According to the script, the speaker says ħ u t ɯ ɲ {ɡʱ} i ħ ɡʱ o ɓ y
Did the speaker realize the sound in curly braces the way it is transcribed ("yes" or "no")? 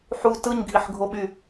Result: yes